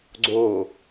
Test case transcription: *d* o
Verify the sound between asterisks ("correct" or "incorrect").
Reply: incorrect